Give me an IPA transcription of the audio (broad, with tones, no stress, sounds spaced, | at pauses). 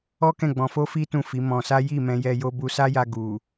ɔ˦ k ɛ̃˦˨ ɡ͡b ɔ̃˧ f o˦ f i˦ t ũ˦˨ f i˨˦ m ɔ̃˧ s a˦ j i˦˨ m ɛ̃˧ j ɛ˧ j o˧ b u˧ s a˦ j a˧ ɡ u˨